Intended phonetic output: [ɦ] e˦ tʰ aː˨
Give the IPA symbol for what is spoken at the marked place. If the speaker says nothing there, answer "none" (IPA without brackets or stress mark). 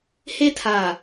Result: h